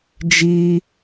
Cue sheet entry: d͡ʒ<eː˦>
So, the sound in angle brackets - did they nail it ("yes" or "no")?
no